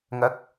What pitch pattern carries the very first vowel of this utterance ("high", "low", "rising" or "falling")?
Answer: rising